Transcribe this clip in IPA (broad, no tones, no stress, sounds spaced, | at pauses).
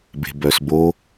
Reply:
b e̤ b œ s b o